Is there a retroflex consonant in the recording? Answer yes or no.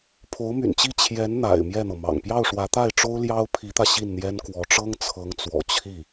yes